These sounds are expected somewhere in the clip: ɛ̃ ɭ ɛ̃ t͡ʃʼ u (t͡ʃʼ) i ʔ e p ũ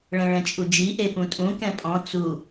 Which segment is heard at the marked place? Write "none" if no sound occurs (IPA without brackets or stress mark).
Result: d͡ʒ